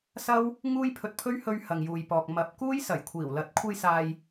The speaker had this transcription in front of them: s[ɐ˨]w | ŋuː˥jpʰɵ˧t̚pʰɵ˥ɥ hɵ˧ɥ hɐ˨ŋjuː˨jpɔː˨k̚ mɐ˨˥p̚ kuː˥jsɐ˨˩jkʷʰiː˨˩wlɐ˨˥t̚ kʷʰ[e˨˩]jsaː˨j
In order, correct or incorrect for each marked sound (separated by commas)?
incorrect, incorrect